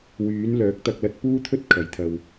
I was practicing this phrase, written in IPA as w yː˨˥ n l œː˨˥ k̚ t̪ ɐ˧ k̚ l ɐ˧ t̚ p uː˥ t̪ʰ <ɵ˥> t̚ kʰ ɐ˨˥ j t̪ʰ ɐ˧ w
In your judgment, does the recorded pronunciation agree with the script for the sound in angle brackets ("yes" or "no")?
yes